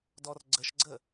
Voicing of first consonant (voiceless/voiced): voiced